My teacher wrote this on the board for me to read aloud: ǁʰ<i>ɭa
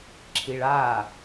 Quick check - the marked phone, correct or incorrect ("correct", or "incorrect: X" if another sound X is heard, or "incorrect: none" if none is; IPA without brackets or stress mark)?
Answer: correct